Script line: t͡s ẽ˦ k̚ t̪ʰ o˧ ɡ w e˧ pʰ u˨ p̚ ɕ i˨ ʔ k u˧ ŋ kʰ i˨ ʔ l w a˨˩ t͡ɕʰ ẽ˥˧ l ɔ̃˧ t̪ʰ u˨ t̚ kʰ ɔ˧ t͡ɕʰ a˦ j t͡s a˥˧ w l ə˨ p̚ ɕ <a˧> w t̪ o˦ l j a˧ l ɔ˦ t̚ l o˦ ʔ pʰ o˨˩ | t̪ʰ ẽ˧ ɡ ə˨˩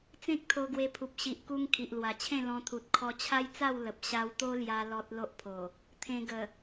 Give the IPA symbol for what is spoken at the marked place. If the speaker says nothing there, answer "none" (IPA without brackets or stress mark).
a˧